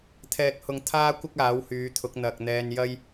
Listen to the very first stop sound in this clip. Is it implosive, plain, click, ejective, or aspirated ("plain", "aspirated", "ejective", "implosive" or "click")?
aspirated